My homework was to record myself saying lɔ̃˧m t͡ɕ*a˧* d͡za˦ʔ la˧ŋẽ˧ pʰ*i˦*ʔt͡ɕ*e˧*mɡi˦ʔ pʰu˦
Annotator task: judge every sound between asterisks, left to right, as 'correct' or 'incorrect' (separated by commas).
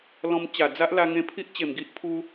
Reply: incorrect, correct, incorrect